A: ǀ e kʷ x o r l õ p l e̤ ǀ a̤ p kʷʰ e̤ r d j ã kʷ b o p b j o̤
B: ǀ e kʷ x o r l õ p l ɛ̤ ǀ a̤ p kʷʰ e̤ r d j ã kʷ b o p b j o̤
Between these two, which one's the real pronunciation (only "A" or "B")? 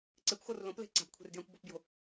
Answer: A